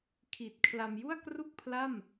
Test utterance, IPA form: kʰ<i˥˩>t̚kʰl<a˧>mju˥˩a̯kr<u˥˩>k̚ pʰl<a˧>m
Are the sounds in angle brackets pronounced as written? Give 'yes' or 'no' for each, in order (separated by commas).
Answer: no, yes, yes, no